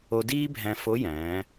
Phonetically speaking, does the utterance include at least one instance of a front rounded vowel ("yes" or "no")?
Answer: no